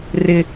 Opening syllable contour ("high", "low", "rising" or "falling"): high